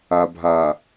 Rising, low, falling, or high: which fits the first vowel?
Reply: low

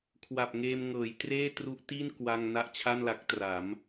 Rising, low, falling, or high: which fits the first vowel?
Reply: low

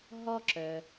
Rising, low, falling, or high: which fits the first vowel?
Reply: high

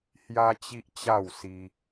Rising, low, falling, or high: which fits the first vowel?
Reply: high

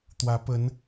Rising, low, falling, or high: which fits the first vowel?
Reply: rising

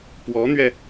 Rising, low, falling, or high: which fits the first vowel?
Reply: rising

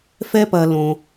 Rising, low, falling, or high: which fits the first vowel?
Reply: high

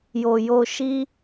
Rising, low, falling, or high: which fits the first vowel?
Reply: low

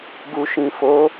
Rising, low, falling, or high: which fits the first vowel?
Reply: low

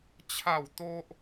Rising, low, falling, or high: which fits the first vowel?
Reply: falling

